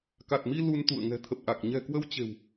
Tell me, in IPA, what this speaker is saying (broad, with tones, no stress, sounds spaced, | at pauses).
k a˨˩ t̚ m i˧ l u˧ n t̪ ṵ˧˨ ə̯ ŋ ɛ̤˨˩ t̪ʰ ə˨˩ p̚ ʔ a˨˩ k̚ ɲ ɛ̤˨˩ k w ə˧ w t͡ɕ e̤˨˩ w